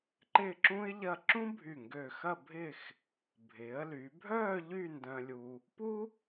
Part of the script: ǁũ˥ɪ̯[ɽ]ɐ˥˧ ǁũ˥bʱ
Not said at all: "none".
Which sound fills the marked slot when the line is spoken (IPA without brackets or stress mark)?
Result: ʎ